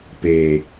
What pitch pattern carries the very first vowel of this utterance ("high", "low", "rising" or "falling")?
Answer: low